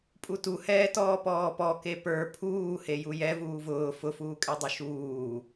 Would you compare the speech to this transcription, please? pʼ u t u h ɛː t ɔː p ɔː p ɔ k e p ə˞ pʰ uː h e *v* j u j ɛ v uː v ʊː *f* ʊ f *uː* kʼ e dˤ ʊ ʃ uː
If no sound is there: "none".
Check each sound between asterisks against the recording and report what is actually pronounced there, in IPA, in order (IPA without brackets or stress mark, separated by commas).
none, f, uː